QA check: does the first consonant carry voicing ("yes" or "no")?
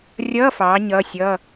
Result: yes